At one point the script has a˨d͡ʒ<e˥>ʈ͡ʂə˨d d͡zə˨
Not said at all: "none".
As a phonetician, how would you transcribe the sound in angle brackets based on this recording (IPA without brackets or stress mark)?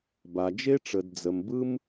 e˥